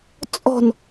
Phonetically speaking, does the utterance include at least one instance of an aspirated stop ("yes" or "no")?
no